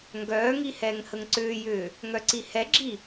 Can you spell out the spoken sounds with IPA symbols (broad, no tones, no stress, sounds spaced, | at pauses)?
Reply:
ŋ ɡ œː ŋ i h ɛː ŋ h ə ŋ ǀ ʏː j ʏː | ŋ œ ǀ i h ɛ ɡ͡ǁ i